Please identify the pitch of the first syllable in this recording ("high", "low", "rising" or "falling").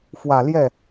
low